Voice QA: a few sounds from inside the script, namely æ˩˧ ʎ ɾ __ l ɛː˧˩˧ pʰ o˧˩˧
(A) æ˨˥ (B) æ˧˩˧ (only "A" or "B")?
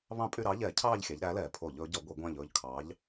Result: A